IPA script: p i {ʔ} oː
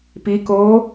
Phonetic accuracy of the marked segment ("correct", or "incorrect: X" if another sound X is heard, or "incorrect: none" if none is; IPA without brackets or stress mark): incorrect: k